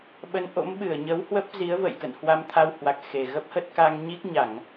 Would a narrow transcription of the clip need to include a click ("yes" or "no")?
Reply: no